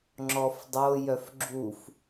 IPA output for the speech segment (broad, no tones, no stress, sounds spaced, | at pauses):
ŋ͡ǁ ɔ f dˤ o j œ f ɡ͡ǁ u f